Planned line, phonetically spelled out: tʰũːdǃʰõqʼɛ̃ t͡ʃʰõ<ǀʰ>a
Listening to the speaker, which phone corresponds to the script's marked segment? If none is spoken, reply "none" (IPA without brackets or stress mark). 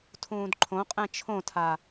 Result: tʰ